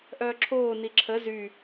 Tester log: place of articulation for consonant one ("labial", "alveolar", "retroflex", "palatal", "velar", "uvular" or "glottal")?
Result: glottal